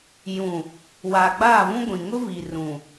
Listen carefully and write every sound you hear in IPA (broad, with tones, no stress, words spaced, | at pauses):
jũ˨ | waː˨ɡ͡baː˦˨vũ˦ ɡʷĩ˨ŋʊ˦ vi˨rũ˨